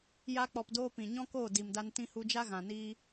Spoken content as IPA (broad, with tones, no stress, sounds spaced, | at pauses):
j a˧ k͡p ɔ˨ p d oː˧ p ĩ˨ ɲ ɔ̃˦ k oː˦˨ d i˨ m d a˧ n t ĩ˧ h u˧ d͡ʒ a˦ ɣ ã˨ n iː˦